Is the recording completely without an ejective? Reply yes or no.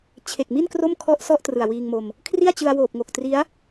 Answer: yes